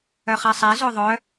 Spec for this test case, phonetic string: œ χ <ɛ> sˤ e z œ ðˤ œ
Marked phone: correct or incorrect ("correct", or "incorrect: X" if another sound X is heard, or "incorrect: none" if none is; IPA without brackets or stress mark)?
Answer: correct